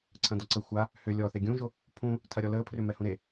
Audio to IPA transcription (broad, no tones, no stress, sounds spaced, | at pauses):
ǀʰ ɐ̃ d ɔ ǀ ə xʷ a | h ʏ lʲ ɔ θ e ɡʲ ũ ʒ o | pʰ ũ | tʰ ɐ ɾʲ ɔ l əː pʰ r ʏ m ɛ h ũ ɾ e